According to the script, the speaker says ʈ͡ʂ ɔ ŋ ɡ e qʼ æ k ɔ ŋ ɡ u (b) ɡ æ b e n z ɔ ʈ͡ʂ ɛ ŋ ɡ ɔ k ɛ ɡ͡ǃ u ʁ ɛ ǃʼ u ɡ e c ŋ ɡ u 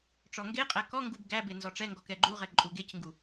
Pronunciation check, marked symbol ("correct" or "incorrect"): correct